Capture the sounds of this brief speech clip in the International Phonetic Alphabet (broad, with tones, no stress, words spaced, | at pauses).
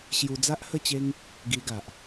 ɕju˧d͡za˦ʔhə˥˧t͡ɕe˦ŋ | ɡi˧ɡa˨ʔ